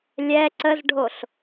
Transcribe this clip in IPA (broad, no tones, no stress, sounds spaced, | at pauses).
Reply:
lʲ ɛ ǀ ə z ɖʱ o ɬ